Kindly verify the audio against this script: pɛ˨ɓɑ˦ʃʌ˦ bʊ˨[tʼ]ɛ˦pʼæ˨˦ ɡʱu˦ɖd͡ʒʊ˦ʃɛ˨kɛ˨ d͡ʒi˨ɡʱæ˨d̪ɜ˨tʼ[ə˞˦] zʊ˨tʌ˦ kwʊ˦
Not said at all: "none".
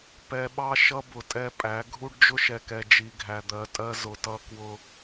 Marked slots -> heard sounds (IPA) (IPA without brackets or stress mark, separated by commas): tʼ, ɜ˦